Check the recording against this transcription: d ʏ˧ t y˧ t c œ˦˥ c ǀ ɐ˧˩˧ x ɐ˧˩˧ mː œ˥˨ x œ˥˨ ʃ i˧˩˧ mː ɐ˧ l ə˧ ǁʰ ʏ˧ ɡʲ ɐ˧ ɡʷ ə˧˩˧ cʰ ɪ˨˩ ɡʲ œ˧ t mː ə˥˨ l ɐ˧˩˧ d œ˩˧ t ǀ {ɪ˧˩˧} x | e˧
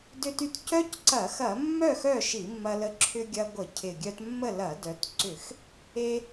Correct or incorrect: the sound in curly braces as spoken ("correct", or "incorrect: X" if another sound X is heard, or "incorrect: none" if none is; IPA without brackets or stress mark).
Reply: incorrect: ʏ˧˩˧